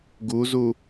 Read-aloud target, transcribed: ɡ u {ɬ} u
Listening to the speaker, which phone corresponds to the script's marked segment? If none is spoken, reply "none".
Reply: z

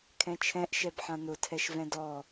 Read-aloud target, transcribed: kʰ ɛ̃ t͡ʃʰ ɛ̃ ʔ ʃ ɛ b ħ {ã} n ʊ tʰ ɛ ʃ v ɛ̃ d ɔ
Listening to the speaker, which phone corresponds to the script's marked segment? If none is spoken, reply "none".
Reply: ã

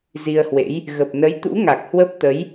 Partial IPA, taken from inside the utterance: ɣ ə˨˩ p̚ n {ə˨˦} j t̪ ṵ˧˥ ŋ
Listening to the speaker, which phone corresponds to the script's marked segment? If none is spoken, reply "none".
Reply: ə˨˦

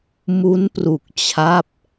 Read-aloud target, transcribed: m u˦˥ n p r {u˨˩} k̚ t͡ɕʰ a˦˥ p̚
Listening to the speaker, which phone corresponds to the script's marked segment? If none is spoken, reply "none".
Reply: u˨˩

